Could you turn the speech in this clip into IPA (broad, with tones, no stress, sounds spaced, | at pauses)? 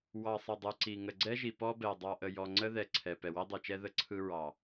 w ɑ˨ sˤ ə˨ dˤ ɯ˨ ǀ i˨ ŋ ə˨ ɡ͡ǀ ɛ˦ ʒ i˨ p ɔ˦ b ɛ˨ dˤ ɑ˨ ʔ ə˨ j ɔ˨ ŋ͡ǀ ə˦ ð ɛ˨ ǀʰ ɛ˨ p ɛ˨ w i˦ dˤ ɯ˨ t͡ʃ ɛ˦ ð ə˦ ǀʰ ɯ˦ ɹ ɑ˨